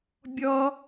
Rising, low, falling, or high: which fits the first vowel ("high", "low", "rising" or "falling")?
high